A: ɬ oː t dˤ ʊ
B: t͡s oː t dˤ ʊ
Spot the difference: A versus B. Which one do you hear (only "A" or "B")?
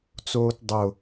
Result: B